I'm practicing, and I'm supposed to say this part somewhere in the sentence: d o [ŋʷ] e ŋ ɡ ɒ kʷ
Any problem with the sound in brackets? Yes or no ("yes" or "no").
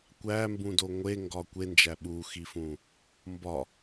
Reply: no